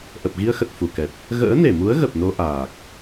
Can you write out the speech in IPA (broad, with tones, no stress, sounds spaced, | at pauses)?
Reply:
ʔ ə˨˩ p̚ ɣ i˧ ə̯ x ə˨˩ t̚ f u˧˩ k ɛ˨˩ t̚ | ɣ ə̰ː˧˥ n e˧˩ m u˨˦ ə̯ ɣ ə˨˩ p̚ n o˧ ʔ aː˨˩ k̚